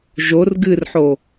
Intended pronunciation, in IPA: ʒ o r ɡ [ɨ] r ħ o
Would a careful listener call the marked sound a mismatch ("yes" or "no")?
no